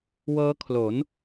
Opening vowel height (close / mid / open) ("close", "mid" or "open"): mid